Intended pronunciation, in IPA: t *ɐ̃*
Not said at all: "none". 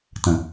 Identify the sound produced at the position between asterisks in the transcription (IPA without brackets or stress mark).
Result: ɐ̃